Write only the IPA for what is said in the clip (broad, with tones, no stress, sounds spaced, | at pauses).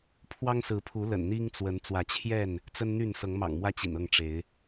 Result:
pʰ w ɑ˦ ŋ s ɹ̩˨˦ pʰ u˨˦ l ə̰˨˩ n n̪ i˦ ŋ t͡s w ə˨˦ n t͡s w ä˨˦ t͡ɕʰ j ɛ˥˨ n | t͡s ə˦ n n̪ y˥˨ n s ɤ˨˦ ŋ m ɑ̰˨˩ ŋ m w ä˦ t͡ɕ ḭ˨˩ n ɤ˥˨ ŋ ʈ͡ʂ e˨˦ ɪ̯